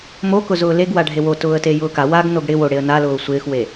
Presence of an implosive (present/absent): absent